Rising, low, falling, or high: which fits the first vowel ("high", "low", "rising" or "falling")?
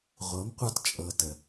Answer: rising